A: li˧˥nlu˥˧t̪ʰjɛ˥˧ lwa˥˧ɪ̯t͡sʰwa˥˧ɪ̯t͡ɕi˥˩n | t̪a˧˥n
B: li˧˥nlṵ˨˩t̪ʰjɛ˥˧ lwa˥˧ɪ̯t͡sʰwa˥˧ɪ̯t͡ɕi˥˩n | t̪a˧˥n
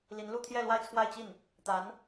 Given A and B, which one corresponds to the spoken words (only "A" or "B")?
A